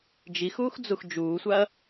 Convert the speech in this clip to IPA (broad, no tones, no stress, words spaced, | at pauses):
d͡ʒixuːxd͡zux d͡ʒuːsʷaɐ̯